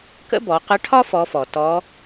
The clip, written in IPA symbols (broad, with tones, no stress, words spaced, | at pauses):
kə̰˥bɔ˩˧ qə˧˥ʈʰɒ˥ fɔ˧˥fɔ˩ tɔ˧˥